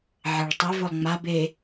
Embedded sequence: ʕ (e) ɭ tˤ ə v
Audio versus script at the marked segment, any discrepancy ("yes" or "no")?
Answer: no